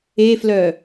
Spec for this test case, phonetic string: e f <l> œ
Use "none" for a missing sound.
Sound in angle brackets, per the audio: l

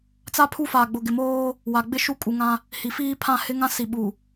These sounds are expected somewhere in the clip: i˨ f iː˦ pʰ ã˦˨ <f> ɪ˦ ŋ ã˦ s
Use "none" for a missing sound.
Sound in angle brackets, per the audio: h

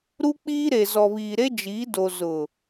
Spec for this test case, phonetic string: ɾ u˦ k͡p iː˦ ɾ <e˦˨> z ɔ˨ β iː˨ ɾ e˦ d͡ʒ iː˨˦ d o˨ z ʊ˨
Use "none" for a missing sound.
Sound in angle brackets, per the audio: e˨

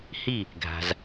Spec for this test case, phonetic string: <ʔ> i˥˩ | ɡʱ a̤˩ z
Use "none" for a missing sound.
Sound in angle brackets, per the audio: h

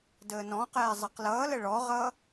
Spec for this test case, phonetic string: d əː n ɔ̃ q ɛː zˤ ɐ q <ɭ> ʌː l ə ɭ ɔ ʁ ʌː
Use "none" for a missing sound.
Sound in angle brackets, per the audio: l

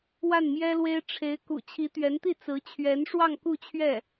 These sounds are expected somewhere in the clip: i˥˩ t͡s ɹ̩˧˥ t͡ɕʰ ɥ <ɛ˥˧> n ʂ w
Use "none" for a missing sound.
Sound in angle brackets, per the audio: ɛ˧˥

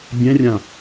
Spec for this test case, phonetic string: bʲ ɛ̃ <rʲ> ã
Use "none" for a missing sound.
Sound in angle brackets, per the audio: rʲ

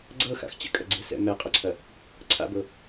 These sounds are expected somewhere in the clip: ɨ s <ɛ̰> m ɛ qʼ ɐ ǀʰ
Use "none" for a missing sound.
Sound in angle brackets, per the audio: ɛ̰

